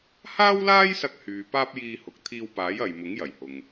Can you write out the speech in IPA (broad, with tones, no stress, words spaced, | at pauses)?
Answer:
haː˥wlaː˥jsɐ˧k̚ hyː˨ paː˥p̚jiː˧ hʊ˨k̚t̪ʰiː˧wpaː˨˥j ɐ˨jmʊ˨˥ŋjɐ˨˩jhʊ˨ŋ